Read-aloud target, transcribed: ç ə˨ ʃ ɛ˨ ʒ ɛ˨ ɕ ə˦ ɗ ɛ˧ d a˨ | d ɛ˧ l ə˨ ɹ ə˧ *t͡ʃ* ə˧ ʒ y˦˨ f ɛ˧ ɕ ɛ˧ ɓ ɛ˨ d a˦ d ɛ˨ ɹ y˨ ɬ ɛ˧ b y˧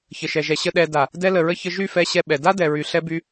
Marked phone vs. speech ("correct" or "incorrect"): incorrect